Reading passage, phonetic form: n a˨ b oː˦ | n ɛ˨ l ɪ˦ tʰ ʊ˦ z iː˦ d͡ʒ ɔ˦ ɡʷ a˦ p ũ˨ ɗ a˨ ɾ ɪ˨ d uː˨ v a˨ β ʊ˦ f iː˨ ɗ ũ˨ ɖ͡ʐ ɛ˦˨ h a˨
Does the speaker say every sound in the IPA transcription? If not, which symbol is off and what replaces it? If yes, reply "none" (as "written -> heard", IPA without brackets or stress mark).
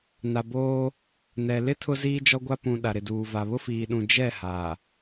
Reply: ɖ͡ʐ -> d͡ʒ